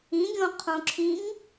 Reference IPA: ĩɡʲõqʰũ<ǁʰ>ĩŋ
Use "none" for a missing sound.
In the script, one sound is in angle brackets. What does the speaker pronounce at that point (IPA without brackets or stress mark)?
ǁʰ